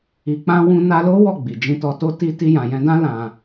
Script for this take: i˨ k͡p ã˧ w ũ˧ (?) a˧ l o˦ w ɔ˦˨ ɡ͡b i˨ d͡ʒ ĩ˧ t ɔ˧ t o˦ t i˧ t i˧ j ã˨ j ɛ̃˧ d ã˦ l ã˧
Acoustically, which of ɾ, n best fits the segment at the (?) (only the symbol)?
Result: n